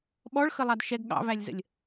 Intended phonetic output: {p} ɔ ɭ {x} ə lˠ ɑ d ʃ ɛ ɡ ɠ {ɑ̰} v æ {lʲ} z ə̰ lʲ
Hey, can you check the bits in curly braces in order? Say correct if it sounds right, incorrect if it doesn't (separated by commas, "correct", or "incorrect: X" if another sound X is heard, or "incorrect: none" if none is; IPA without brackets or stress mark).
incorrect: ɓ, correct, correct, correct